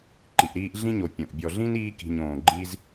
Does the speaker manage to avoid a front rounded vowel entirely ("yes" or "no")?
yes